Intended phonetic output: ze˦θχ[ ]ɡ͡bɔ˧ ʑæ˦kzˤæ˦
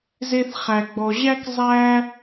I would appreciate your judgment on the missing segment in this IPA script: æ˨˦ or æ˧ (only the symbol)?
æ˧